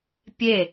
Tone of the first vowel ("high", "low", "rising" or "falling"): falling